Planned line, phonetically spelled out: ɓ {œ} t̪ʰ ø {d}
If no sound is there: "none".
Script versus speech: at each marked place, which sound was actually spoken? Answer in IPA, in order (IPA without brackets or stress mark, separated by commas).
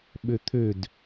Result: ø, d